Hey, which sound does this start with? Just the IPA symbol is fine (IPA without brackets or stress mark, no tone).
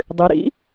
dˤ